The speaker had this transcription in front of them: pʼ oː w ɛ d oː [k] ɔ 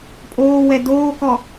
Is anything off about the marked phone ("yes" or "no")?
no